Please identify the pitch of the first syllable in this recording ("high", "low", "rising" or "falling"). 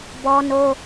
high